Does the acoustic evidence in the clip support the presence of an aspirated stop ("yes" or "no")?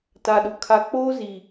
yes